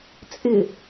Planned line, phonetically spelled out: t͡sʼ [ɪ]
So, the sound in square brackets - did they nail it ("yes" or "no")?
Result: yes